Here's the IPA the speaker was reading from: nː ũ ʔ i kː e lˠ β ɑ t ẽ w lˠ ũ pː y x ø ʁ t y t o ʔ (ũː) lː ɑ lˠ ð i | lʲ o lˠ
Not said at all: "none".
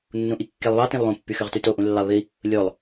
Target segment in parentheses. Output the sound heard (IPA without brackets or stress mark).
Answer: ũ